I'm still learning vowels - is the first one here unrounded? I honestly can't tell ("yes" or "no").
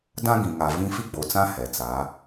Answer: yes